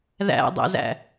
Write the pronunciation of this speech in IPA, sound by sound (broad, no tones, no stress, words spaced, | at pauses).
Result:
ðæ̰dˤæ̰zæ̰